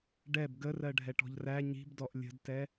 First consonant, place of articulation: retroflex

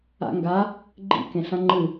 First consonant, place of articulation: velar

